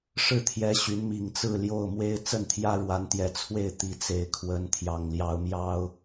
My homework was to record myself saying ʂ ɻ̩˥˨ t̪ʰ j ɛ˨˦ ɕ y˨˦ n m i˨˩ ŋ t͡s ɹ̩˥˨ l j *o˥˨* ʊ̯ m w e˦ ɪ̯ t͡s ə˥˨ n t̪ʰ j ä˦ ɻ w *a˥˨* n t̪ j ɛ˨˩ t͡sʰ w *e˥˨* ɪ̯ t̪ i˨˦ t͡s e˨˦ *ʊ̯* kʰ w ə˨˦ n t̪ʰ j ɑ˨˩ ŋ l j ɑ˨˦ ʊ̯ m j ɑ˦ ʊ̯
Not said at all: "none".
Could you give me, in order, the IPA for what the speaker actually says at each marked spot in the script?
o˥˨, a˨˦, e˥˨, ɪ̯

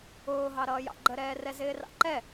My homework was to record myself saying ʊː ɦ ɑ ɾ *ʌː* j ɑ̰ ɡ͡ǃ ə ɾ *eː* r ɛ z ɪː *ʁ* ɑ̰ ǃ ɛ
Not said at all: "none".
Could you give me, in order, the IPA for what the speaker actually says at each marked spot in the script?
ʌː, ɛː, r

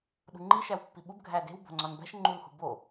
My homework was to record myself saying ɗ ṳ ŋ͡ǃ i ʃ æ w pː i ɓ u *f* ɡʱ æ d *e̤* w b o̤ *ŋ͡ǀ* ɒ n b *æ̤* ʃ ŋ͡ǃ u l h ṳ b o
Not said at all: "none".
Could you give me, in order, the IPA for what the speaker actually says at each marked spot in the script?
b, e̤, ŋ͡ǀ, æ̤

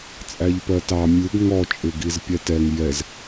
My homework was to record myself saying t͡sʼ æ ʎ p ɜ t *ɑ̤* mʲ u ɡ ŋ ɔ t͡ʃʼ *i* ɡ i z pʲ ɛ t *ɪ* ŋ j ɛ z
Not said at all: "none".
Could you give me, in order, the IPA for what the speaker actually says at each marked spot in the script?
ɑ, ɪ, ɛ

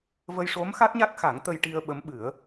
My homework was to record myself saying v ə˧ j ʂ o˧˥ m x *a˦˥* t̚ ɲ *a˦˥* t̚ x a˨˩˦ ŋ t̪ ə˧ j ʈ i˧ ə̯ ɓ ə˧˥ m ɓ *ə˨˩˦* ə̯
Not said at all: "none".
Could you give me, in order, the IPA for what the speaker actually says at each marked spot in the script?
a˦˥, a˦˥, ɨ˨˩˦

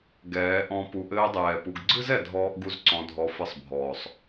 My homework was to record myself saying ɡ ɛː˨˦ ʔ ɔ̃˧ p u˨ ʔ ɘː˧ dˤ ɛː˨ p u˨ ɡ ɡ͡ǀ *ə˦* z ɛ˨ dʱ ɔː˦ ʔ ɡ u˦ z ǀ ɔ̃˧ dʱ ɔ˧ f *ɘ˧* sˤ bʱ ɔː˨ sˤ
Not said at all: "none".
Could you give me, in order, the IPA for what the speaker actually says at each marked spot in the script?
ɨ˦, ɘ˧

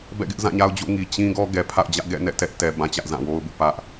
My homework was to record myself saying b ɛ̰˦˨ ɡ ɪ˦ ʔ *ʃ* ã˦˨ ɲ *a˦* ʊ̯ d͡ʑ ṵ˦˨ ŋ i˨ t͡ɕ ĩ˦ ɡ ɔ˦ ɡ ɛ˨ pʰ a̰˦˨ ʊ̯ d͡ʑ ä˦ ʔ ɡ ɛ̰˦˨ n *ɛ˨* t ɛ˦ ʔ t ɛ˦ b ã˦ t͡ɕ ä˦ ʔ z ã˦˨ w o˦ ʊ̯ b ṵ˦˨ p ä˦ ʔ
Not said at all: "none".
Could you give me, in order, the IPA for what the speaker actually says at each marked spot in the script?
z, a˦, ɛ̰˦˨

